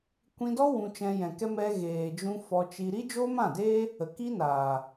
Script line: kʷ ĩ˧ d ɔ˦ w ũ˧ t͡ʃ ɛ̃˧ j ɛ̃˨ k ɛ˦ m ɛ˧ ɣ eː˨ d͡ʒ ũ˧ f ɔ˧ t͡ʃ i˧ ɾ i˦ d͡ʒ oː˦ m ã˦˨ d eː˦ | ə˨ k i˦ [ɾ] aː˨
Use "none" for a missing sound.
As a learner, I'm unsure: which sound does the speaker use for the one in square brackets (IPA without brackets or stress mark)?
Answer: n